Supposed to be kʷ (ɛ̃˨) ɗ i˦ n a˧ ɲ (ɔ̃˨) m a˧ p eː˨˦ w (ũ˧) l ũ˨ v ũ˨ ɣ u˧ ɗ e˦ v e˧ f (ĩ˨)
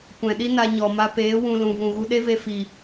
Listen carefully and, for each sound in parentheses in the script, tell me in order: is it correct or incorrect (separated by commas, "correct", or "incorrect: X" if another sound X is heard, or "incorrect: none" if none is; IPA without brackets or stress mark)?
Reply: correct, incorrect: ɔ˨, correct, incorrect: i˨